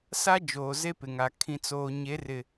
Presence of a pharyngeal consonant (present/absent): absent